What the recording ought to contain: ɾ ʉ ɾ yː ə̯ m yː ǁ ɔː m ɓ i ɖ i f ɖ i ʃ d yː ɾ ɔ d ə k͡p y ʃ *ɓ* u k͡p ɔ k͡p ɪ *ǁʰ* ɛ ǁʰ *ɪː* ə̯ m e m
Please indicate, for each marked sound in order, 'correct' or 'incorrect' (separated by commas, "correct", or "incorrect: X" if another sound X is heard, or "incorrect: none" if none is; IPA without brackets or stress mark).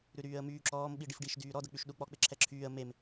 incorrect: ɗ, correct, incorrect: yː